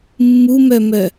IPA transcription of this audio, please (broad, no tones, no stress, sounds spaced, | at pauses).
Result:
mː u m œ m œ